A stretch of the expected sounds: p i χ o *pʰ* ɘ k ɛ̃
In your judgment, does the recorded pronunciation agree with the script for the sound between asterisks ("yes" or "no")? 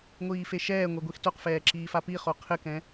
no